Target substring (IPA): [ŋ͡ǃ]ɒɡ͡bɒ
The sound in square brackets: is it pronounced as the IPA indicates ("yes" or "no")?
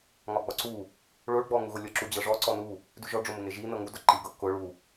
no